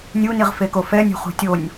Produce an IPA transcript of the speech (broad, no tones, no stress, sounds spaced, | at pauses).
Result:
nʲ u n i ʁ f e k o f ɛ nʲ o̤ χ ṳ tʲ o nʲ